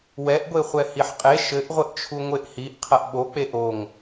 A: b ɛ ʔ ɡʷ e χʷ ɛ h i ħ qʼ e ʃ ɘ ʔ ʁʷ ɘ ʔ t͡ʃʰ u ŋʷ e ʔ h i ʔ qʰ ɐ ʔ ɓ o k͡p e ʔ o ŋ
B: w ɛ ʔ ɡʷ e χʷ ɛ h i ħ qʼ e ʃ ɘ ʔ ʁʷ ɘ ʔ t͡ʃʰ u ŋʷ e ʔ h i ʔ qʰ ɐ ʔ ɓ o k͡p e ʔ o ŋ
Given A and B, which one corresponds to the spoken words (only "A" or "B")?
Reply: B